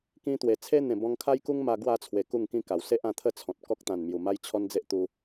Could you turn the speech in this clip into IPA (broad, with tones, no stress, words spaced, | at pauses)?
kĩ˧t̪we˨˩t͡sʰe˦n̪ẽ˨˩ bɔ̃˧ŋkʰa˦jku˦ŋ ma˧ɡwa˥˧t͡sʰwe˨˩ ku˥˧ŋkĩ˦ka˨˩w se˦ʔ ã˧t̪ʰə˥˧t͡sʰɔ̃˨t̚ kɔ˦k̚t̪ã˨˩nmju˨˩ma˦j t͡ɕʰɔ˦nd͡ze˦ʔt̪u˧